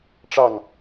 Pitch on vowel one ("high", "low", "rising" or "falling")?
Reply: falling